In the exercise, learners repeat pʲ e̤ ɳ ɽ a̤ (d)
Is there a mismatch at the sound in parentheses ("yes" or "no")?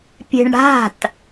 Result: yes